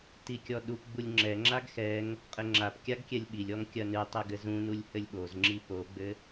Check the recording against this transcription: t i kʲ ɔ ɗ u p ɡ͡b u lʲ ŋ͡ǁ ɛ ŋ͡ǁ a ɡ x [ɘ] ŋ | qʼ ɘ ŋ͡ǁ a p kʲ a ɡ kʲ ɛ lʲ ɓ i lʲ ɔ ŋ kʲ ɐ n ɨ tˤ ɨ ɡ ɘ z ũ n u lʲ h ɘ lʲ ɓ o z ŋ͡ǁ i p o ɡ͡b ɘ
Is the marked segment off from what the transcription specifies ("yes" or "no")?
yes